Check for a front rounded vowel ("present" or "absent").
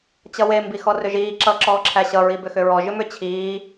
present